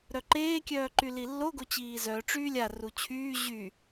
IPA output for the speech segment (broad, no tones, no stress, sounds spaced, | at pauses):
ɾ œ ǃ eː kʲ œː ǃ y l i lː o ɡ o t͡ɕ iː z œ ʈ͡ʂ yː lʲ a r u t͡ɕʰ yː ʑ y